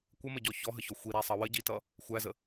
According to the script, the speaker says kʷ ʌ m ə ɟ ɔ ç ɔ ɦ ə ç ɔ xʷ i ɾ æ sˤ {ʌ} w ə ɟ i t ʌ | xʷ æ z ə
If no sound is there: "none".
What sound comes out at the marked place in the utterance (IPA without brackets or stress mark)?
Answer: ʌ